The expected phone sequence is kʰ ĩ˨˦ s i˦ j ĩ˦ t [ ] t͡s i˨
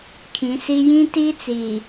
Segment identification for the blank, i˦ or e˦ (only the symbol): i˦